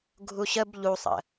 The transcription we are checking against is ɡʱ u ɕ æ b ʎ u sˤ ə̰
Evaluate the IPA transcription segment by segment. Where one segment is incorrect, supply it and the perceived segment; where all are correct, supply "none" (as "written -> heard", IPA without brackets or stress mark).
æ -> ə